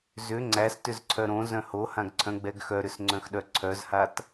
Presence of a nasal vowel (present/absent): present